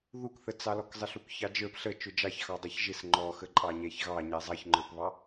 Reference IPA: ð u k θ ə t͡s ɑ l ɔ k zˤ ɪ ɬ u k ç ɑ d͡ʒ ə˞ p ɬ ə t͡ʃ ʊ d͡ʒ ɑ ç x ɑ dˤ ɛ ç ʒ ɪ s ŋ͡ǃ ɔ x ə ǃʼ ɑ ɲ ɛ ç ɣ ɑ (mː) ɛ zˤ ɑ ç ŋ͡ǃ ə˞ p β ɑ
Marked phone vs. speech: incorrect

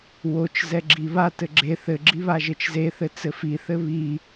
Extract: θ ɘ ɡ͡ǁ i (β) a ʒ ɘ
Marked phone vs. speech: correct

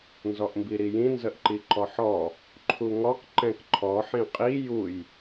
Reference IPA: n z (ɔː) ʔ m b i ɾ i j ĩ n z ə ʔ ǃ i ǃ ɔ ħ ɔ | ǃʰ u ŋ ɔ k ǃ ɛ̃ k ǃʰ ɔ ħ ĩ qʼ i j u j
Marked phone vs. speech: incorrect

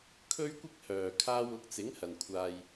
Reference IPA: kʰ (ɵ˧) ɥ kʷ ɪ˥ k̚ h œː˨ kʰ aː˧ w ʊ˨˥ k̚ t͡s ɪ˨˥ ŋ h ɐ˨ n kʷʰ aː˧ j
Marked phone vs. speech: incorrect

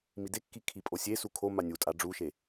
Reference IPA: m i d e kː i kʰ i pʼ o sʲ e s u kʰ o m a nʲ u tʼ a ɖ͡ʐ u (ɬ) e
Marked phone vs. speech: incorrect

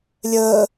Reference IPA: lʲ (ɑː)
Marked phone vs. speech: incorrect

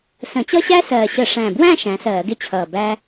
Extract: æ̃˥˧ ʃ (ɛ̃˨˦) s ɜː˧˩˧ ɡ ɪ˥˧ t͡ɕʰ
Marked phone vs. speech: incorrect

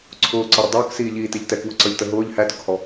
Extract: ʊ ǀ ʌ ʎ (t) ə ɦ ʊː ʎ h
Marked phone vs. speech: correct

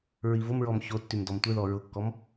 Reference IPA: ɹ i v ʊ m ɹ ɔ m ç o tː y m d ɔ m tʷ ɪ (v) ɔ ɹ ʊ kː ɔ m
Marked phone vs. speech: incorrect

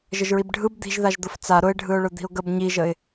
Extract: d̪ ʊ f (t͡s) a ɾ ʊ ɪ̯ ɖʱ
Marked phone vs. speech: correct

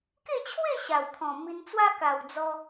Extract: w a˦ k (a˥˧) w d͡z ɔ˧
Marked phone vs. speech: incorrect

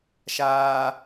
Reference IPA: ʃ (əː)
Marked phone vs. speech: incorrect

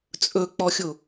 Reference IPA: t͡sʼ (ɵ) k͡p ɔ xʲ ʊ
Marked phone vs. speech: correct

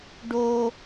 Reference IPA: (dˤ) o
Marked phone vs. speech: incorrect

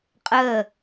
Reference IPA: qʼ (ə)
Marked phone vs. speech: correct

